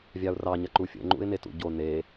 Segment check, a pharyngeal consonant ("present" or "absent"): absent